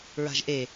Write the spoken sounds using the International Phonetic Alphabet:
ɹa̤ʒʔe

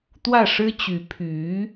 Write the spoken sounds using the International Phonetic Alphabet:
t̪wä˥˩ʂɻ̩˥t͡ɕy˧˥ pʰy˧˥

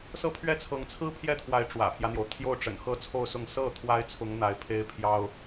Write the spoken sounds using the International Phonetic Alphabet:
sɤ˥˧pʰɥɛ˥˩t͡sʰɤ˧˥ŋt͡sʰɹ̩˥ pʰjɛ˥˩t̪ʰwa˧˥ɪ̯ ʈ͡ʂwä̰˨˩pʰjä˦n̪jo˩ʊ̯ t̪ʰjo˥˩ʊ̯ʈ͡ʂə̰˨˩n xɤ˥t͡sʰo˥˧ʊ̯sʊ˥˧ŋ sɤ˥˩ t̪ʰwa˥ɪ̯t͡sʰʊ˧˥ŋ n̪a˧˥ɪ̯pʰe˥ɪ̯pʰjɑ˥ʊ̯

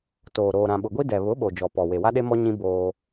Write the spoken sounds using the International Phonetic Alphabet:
toː˨ ɾoː˨ɾã˨ɓʊ˨ɡʷi˦ dɛ˨βʊ˨˦ɓo˨ d͡ʒɔ˨pɔ˨ we˨wa˦ɗe˦mɔ˦ ɲĩ˦ boː˦

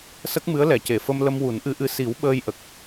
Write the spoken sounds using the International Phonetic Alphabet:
sə˦˥k̚ mɨ˧˥ə̯lɛ˨˩˨ce˨˩˨fə˧m lə˧mwu˨˩˦nʔɨ˧˥ʔɨ˧˥ si˨˩˦w ɓəː˧jʔə˨˩k̚

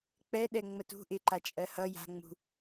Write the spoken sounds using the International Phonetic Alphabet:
k͡pɛɗɛ ŋ͡mətṳ ʔɪǃa t͡ʃʼɜhʌ ja̤ ŋ͡mṳ

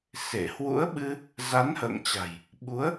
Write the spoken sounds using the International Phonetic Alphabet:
se˧˩ hwṵ˧˥ə̯ɓɨ˧ | za˨˦nhə̰ː˧˨ŋt͡ɕa̤˨˩j | ɓu˨˦ə̯

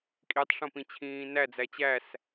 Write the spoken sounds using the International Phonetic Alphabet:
kʼitˤʂõpĩ t͡ɕʰĩːnæ d͡zæt͡ɕæs

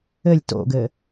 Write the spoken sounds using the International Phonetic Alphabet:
ɘlʲ to̰ɡɘ

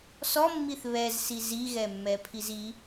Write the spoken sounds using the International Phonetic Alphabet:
sɔmːiθ βɛzsi ziɣɛmːɛpʰiz i

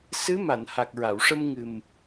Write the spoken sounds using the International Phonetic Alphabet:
sɨ˧˥ma˨˩˨n ha˨˩k̚ɹa˨˩˨wʂə˧m ŋɨ˨˩m

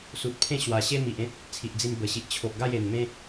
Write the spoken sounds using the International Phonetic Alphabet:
su˨t̚pʰẽ˥˧ ɕwa˨˩ɕe˦mi˨ʔẽ˦t̚ | t͡sʰi˨ʔd͡zi˧mbə˨˩ɕi˨ʔ t͡ɕʰo˨ʔɡa˥˧je˨˩n mẽ˦

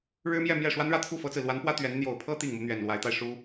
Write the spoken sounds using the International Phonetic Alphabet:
ɻɻ̩˥ mjɛ˥˧mjɛ˥˩ ʂwa˥nɻä˥˧t̪ʰu˥˩ fɤ˥t͡sɹ̩˨ lwa˧˥npwä˥ t̪ɥɛ˧˥n n̪jo˨˩ʊ̯pʰɤ˥ t̪i˥˩ŋmu˧˥ n̪ɥɛ˨˩nlwa˧˥ɪ̯t̪a˧ɪ̯ ʂu˥

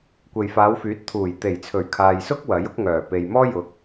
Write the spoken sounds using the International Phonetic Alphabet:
kʷe˨jfaː˨˧wfyː˨˥t̚t̪ʰuː˨˩j t̪e˨˩jt͡sʰɵ˨˩ɥ kʰaː˨jsʊ˥k̚ wɐ˨˥jʊ˥k̚ŋœː˨˩ pe˨jmɔː˥jʊ˨˥k̚

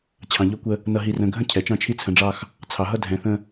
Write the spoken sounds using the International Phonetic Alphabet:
t͡ɕʰɑ̃˨ʎɔ˦kʷə˦ | nʌ˨ɦi˨ rə̃˨ɡʱə̃˦ cʰɛ˨t͡ʃɑ̃˦t͡ʃʰi˦ t͡sʰə̃˨ɖ͡ʐɑ˦x | t͡sʰɑ˨ɦʌ˦ dʱɛ̃˨ θə̃˦

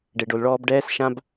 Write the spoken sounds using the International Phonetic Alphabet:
ɖe˩ɖo˩lɭɔː˧b ɖɛː˧sʃã˧b

